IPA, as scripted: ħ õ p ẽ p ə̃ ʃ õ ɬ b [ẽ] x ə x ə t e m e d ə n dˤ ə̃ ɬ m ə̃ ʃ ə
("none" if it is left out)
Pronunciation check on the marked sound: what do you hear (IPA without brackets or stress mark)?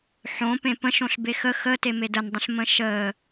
e